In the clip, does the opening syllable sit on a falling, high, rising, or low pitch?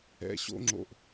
low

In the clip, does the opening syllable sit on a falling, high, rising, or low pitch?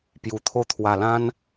low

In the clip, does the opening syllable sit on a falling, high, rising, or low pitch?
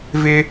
high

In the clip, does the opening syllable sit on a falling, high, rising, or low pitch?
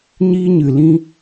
high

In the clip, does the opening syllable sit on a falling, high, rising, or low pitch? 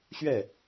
falling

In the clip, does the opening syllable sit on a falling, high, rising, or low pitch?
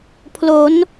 rising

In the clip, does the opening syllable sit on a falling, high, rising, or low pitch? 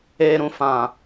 low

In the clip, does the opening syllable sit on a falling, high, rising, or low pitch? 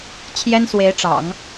high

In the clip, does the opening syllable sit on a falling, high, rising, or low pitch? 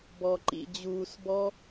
low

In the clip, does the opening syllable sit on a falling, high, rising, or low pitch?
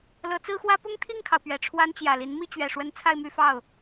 rising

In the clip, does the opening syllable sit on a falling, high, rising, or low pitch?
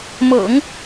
low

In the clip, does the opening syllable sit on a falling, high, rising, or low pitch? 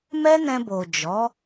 high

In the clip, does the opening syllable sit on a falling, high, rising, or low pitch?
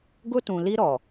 high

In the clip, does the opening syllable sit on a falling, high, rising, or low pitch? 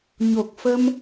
low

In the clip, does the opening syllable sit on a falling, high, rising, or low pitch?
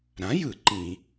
rising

